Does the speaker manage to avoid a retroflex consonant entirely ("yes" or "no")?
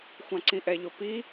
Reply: yes